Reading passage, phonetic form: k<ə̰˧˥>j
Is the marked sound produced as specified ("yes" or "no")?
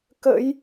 yes